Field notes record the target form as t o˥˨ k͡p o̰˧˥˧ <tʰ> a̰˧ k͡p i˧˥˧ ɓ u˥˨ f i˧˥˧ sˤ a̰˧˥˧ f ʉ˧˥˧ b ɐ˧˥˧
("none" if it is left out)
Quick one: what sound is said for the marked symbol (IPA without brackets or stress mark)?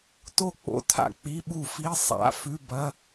tʰ